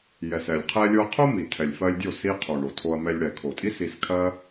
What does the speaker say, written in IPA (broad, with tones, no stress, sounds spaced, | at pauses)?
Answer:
j ɛ˨ s ɛ˨ lʲ qʰ ɛ˧ lʲ o˧ ɐ̯ qʰ o˦ m i˨ tʰ ɛ˨ lʲ f ɜ˧ lʲ dʲ o˦˨ s i˧ qʰ o˨ ɳ o˨ tʰ o˧ ɐ̯ m ɛ˧ lʲ ɽ ɛ˨ kʰ o˨ tʼ i˦ s i˧ s kʰ ɜ˦